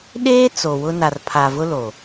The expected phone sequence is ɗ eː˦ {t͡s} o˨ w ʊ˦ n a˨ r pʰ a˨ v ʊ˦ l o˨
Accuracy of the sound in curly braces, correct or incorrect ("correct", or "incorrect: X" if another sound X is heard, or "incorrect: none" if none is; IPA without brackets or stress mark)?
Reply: correct